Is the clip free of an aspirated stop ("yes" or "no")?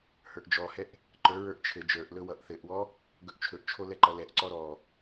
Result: no